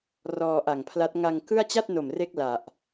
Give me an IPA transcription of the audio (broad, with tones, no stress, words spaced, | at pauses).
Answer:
rɔː˧ʔa˨˩ŋpʰla˦˥t̚ ŋa˧ŋ kɯ˥˩a̯ t͡ɕa˥˩t̚no˨˩m re˥˩k̚la˨˩ʔ